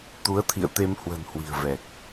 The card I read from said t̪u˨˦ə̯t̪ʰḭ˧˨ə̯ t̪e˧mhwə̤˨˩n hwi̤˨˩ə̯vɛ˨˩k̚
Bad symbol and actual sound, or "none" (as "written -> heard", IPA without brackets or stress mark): none